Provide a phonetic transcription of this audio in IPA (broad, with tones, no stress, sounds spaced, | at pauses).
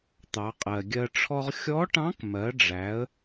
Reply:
t̪ ɑ˩˧ qʼ ɜ˩ ɡʲ ɜ˧ ʈ͡ʂʰ ɔ˥ ʁ xʲ ɔ˧˥ ʈ ɑ̃˧˥ k m ɜ˩˧ ɖ͡ʐ æ˩˧ ə̯